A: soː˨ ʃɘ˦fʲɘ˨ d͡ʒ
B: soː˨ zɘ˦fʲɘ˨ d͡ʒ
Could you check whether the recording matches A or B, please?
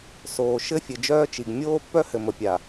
A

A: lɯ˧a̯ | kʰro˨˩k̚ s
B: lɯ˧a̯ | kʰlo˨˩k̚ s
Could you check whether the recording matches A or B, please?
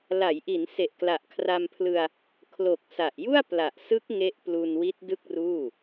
B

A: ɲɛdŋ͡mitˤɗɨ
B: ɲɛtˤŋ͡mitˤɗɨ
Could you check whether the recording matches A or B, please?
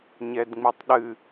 A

